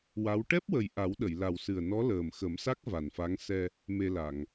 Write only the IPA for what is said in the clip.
wa˧˥w ʈɛ˦˥p̚wə˨˩j ʔa˨˩˦wɗə˨˩˨jla˨˩wsɨ˨˩ə̯ nɔ˧˥ləː˨˩mxə˨˩˦msa˦˥k̚ va˨˩nfa˧˥ŋ sɛ˧ | me˧la˨˩˨ŋ

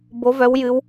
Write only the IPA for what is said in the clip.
bo˨˦vœ˨˦wjɨ˨˦w

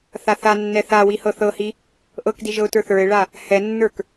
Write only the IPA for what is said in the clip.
θaθanːɛ θawi hɤθɤhi | ʔɤkdi ʒɤʊ̯tə˞θə˞ɪ̯ɭa | hɛnːə˞k

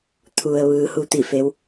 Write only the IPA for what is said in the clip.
t̪ʰu˩ə̯ ʋɯː˩˧hu˧t̪i˧˩fe˩˧w

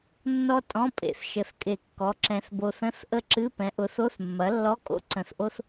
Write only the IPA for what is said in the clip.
nːɔ˥tʼɔ̃˧˥˧pʼḛ˨˩θ ʃə˨˩θkʼe˨˩ kːɔ˩˥ǁɛ̃˨˩θ bo˨˩θə̃˧˥˧θʔə˥˨ ǁɨ˧˥˧ pɛ̃˩˥ʔʊ˩˥θo˧˥˧θ mːɐ˩˥lːɔ˧˥˧ kʼo̰˥˨ǀə̃˨˩θʔo˥θ

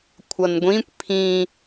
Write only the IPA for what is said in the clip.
kʷʰʌnɡʷĩkʷ pʰĩ

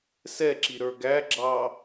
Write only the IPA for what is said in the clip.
sɛǁi ɾə˞ɡæɡ͡ǁɑ

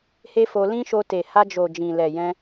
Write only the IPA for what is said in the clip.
he˦fo˧ lĩ˦ʃo˧ te˨ha˧d͡ʒo˨ d͡ʒĩ˨lɛ˨ jɛ̃˧

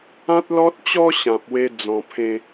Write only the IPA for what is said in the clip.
ã˦t̚lɔ˦t̚t͡ɕɔ˦ ɕã˨p̚we˧ d͡zɔ̃˧pʰẽ˦

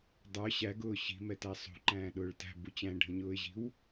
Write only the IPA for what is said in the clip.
dˤə˞ ɕæɡʊː ɕi̤mɛtæ sˤṳǃæ̃ːɗʊːɭ tæ̤bu t͡ɕæ̃ɖʱə̃ɲʊːɪ̯ʑi̤w

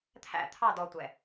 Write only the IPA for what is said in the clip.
t̪ʰæ̰ t̪ʰɑ dɔtʷɛ

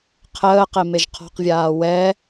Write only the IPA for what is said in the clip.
qʰəːqemeʒ qʰɔ̤qvʲaː wɛ

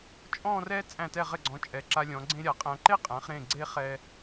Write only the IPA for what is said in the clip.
t͡ʃʼɔ̃˥˧rɛ˥ t͡sʼæ̃˧˩tɛ˧˩ʁɘ˧˩ɡ͡ǀɔ̃˩˧ t͡ʃʼɛ˩˧ǁa˧lʲɔ̃˩˧ ɡ͡ǀẽ˥ɾʲa˩˧qʼæ̃˧ ǃe˥qʼæ̃˩˧χɾẽ˧˩ ɡ͡ǀe˥ χɛ˧

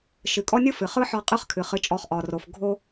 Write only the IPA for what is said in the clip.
ʃɨ˨kʼɔ˦nʲɯ˦fɨ˨ χɯ˦ħɒ˧ qʼɯ˦χkʰɨ˨χɨ˧t͡ʃʼɔ˧χ ʔɒ˨ro˨f ɡʱo˧

